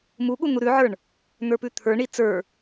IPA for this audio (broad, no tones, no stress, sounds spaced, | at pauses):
m u ɠ u n̪ u ɾ ʉ ʕ ə˞ ɳ | n̪ ə˞ p ʉ t̪ʰ ə˞ ɳ i t͡s ə˞